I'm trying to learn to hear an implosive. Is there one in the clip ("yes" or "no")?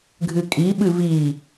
yes